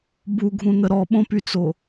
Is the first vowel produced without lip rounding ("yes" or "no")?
no